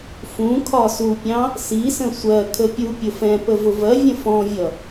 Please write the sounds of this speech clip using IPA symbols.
fũkʰɒ supʲɑ̃ | sisə̃ sʷɜ kʰəpʲupʲʊ fɛ̃pə vʊvɜvʲə̃ fɔ̃vʲʌ

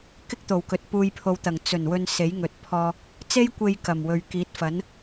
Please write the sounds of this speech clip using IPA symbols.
kɪ˥k̚t̪o˨˩wkɵ˨t̚ puː˧jpʰo˨˧wt̪ɐ˨˩ŋ t͡sɵ˨˩nwɵ˧n se˨˥jŋɵ˨t̚pʰɔː˧ | t͡se˥jkʷe˧j kɐ˨˩mwɵ˨ɥ kiː˨˥t̚fɐ˨˥n

